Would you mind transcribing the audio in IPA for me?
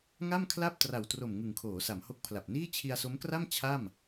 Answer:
ŋa˥˩mkʰla˥˩p̚ tra˨˩wtro˨˩m ŋɯ˨˩ŋkʰoː˩˦sa˩˦mho˦˥k̚ pʰla˨˩p̚niː˥˩ t͡ɕʰi˧a̯so˦˥mkra˥˩m t͡ɕʰa˥˩m

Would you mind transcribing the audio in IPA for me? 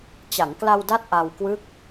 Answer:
t͡ɕa˩˦ŋ kla˧wda˦˥t̚ ʔa˧w kwɯ˦˥k̚

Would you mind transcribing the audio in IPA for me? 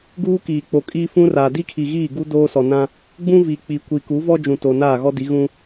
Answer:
ɡuː˦kiː˨k͡po˨kʼiː˦ fũ˦raː˨ di˦kʰi˨ɣiː˦˨ ɡu˦ doː˦sɔ˨nã˦ | ɡ͡bũ˦vi˨ k͡pi˨kʷi˨ku˨˦ vɔ˦ d͡ʒũ˨ to˨naː˦˨ɣɔ˦di˨˦ ɣũ˦

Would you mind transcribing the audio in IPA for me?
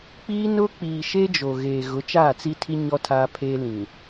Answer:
k͡piː˦nʊ˦ k͡piː˨ ʃe˦d͡ʒo˨ ɣeː˨ ɣʊ˨˦t͡ʃaː˦˨t͡si˦tʰi˦ ɲɔ˦tʰaː˦pʰeː˦ lĩ˨

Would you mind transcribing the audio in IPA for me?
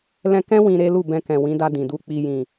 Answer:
lɛ̃˧kɛ̃˦ wĩ˧ɾe˦ lu˦˨bɛ̃˧kɛ̃˨ wĩ˨˦ da˧dĩ˨du˧ k͡pi˨jĩ˨

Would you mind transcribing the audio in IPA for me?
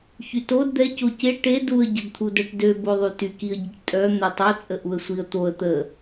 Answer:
çytod d̪ɛ coce ʈe duə̯ ɟədt̪ʰudɛʈdø boðˤyty kiə̯ɟiʈtʼœ n̪ɛtˤo t͡sʼəʔuə̯sʷiə̯t̪oə̯ t̪ə

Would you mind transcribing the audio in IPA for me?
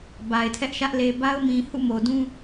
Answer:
ba˨ɪ̯tʰɛ˦ʔʃä˦ʔ le˨ba˦ʊ̯mĩ˨ hṵ˦˨mo˨dũ˦

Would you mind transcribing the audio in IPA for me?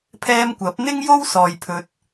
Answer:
pʰɛː˧m kʷɐ˨˥p̚n̪ɪ˥ŋjo˥w sɔː˨jpʰɵ˨t̚

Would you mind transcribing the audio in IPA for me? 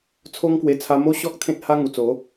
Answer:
t͡sʰo˦ŋkwe˧ t͡sʰa˧mo˦ɕɔ˦k̚ t̪ʰẽ˦t̚ha˦ ŋu˨˩t͡so˨˦

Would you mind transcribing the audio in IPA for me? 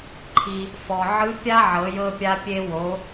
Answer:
ǃʰi˩ | fɔ˩ʕɯ˧˥pʲa˥ʕɤ˩˧ jɤ˧pʲa˧pʲe˧ wo˩˧

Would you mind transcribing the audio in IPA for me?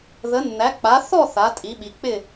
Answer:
ðə˨˦nːæ˨˦k͡pa˨˦ θɔ˥˧ θa˨˦tʼi˨˦ɓi˨˦ k͡pɪ˥˧

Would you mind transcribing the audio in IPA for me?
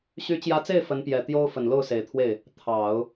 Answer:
ɕy˧˥t͡ɕjä˧˥t͡se˥˩ɪ̯ fə˧˥npjɛ˨˩ t̪jo˥ʊ̯ fə˨˩nlo˥˩ʊ̯se˨˩ɪ̯t̪ʰwe˥˩ɪ̯ | t̪ʰɑ˨˩˦ʊ̯

